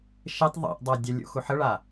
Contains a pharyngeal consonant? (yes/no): yes